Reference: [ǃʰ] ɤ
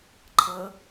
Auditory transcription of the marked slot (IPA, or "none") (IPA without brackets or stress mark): ǃʰ